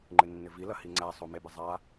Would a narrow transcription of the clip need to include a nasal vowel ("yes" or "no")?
no